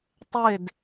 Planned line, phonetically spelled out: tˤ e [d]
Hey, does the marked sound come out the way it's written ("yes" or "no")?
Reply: yes